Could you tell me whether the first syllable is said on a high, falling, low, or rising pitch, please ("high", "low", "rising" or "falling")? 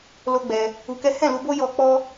high